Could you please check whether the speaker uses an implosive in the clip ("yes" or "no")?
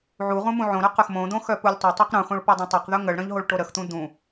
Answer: no